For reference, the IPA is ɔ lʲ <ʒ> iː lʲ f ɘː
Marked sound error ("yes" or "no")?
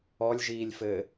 no